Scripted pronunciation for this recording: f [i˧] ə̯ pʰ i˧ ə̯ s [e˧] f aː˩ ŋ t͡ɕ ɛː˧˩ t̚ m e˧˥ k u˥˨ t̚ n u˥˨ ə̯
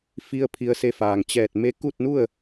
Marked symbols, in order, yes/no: yes, yes

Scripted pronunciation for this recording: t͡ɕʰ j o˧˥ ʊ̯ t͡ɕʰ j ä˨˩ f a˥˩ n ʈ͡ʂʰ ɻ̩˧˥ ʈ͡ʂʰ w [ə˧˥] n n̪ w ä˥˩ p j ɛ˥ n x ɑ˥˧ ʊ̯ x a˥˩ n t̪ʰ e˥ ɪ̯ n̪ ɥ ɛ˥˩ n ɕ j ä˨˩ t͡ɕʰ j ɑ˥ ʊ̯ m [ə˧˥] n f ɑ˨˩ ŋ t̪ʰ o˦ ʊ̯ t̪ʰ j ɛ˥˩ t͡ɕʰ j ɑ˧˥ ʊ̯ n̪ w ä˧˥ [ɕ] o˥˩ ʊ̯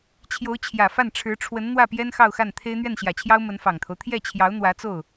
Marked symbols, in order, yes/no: yes, yes, no

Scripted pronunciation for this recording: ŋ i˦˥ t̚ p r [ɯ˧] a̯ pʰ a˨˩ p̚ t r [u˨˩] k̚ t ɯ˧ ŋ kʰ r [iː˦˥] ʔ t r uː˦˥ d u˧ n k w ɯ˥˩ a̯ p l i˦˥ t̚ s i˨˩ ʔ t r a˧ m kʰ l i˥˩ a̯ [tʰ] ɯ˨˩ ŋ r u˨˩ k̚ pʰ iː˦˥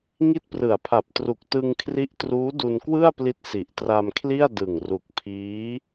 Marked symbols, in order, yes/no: no, yes, no, no

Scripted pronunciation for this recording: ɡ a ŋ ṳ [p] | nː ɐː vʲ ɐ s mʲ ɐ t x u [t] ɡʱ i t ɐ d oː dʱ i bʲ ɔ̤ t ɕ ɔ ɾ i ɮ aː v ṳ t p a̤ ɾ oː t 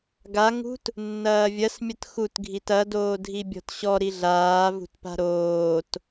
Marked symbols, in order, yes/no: no, yes

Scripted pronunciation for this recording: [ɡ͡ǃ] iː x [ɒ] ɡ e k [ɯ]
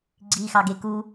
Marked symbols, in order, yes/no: no, no, no

